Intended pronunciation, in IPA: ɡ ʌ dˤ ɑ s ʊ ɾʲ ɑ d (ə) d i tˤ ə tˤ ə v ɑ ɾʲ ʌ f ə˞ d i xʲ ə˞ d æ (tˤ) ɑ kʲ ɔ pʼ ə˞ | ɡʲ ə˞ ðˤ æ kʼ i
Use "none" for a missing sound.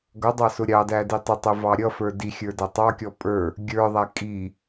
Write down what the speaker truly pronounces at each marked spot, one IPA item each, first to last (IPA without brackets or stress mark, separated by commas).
æ, tˤ